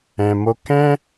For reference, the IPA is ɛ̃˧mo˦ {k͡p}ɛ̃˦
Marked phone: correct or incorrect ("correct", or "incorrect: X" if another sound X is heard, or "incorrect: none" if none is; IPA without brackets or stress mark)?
incorrect: k